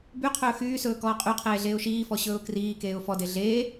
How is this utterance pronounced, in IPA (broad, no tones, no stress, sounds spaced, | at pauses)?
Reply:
b y qʰ ɵː x yː s ɵː k ɔː qʼ y qʰ eː ɮ eː ʊ̯ ʃ iː f ɔ ɕ ɵː ʊ̯ k r iː k eː ʊ̯ f ɔ d e ɮ eː